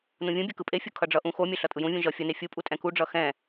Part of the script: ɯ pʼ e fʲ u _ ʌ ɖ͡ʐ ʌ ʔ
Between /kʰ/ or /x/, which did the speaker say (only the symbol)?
kʰ